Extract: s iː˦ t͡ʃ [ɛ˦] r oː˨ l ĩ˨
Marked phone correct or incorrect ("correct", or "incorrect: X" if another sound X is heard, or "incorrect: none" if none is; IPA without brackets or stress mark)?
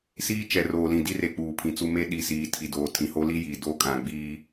incorrect: ɛ˨